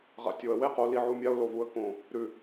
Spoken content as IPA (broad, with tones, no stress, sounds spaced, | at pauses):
ʁ a̰˨ tʲ o˨ ə̯ w e˦˨ q o˨ l i˨ ʕ u˨ mʲ a˧ ʊ̯ l o˨ v u˧ ə̯ k õ˨ | ɾ ʉ˨